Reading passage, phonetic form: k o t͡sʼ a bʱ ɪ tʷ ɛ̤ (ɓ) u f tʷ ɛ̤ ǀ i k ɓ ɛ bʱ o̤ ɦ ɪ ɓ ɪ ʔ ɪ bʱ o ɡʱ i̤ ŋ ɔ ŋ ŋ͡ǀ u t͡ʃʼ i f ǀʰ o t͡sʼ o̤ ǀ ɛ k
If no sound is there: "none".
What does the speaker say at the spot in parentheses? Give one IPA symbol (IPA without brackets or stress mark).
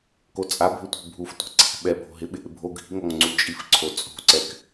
bʱ